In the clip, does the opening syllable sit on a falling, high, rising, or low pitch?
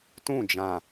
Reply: falling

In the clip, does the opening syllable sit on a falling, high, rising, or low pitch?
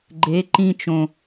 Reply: rising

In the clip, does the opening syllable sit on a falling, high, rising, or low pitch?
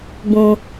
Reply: high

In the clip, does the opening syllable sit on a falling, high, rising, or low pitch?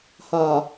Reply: low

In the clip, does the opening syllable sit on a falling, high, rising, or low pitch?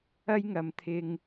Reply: high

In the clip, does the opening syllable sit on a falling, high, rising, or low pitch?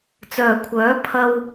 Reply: low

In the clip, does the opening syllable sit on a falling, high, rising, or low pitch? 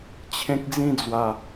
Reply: high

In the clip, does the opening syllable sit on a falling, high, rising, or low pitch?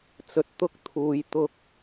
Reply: low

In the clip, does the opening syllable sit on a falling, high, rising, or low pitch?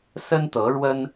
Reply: high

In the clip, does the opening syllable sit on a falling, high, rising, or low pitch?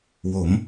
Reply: rising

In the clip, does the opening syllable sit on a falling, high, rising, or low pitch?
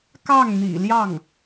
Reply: falling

